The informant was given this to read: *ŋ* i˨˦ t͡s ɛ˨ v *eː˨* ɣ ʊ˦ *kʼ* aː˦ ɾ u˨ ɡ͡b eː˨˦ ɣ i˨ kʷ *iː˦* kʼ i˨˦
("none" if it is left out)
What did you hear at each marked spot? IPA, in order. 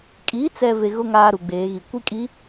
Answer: kʼ, e˨, ŋ, i˦

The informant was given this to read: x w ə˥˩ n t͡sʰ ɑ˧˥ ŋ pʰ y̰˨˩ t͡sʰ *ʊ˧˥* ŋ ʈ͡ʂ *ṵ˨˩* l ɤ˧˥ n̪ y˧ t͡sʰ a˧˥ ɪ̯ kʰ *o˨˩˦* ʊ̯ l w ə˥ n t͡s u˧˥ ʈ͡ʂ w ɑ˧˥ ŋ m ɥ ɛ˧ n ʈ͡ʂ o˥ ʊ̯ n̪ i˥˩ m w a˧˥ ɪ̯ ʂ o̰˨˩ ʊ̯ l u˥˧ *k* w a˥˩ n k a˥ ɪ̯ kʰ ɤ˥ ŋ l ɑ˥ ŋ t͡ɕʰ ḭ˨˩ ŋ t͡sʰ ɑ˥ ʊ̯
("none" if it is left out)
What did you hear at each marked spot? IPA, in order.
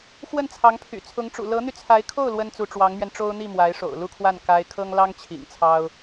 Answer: ʊ˧˥, ṵ˨˩, o˥˩, kʰ

